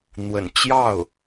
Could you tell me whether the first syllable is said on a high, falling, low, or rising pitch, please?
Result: low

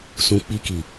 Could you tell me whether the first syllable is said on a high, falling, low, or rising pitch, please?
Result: low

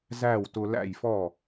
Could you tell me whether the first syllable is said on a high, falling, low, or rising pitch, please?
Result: falling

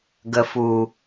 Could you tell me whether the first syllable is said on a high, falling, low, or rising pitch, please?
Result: low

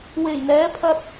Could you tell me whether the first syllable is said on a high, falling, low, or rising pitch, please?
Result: low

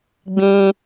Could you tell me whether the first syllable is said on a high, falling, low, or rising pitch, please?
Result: low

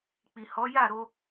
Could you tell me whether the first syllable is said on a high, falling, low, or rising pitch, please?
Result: low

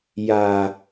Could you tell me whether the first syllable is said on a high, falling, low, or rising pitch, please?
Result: low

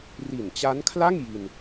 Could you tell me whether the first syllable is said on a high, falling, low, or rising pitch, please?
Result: low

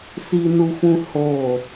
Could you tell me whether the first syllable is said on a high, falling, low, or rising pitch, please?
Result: low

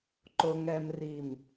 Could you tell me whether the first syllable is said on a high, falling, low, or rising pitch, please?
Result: low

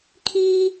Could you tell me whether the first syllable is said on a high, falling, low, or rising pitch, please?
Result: high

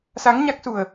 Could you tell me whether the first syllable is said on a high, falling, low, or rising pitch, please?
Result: rising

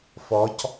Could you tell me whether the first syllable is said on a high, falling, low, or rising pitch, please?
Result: rising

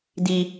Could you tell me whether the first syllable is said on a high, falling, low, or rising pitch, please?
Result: high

